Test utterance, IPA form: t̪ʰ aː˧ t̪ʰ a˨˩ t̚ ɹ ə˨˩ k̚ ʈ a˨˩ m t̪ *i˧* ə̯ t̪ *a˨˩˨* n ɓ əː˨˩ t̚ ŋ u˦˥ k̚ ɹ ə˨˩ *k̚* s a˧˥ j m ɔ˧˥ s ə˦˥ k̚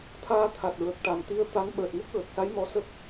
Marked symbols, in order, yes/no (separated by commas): yes, no, yes